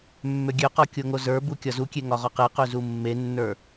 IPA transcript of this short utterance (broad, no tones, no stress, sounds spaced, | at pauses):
mː ø ɡʲ ø q ɔ kʲ o ŋ o z ə˞ b u kʲ ɒ z u kʲ e ŋ ɒ ʁ ɒ q e q ø z u mː e nː ə˞